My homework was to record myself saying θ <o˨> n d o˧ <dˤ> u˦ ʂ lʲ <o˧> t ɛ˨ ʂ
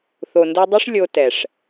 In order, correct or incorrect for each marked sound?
correct, correct, correct

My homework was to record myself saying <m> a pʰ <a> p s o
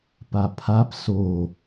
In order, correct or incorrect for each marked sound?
incorrect, correct

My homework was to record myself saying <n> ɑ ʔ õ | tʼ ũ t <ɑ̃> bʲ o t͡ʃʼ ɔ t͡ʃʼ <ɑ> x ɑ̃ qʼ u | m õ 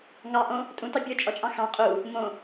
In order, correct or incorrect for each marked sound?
incorrect, incorrect, incorrect

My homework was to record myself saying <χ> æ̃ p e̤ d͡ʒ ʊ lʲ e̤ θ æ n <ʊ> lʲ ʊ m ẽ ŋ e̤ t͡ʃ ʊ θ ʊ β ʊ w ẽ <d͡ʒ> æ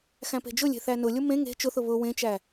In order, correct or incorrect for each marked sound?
incorrect, correct, incorrect

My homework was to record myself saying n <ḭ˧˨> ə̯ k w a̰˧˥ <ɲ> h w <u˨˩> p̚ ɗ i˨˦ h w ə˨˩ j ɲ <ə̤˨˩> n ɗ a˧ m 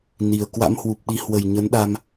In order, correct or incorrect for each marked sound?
incorrect, incorrect, correct, incorrect

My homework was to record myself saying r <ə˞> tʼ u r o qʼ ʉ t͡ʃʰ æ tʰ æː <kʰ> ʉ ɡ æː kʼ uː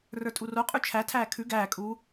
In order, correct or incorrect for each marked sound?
correct, correct

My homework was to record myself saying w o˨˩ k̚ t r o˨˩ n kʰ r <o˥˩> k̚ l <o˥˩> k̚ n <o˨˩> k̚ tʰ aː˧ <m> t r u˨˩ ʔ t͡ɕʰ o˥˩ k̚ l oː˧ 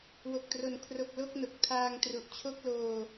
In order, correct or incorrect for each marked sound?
incorrect, correct, correct, incorrect

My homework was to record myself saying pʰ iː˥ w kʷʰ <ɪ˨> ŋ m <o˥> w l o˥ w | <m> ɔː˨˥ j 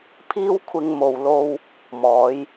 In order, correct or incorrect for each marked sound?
incorrect, incorrect, correct

